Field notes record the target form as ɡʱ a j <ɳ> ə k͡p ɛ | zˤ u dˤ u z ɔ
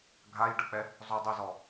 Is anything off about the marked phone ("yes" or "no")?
yes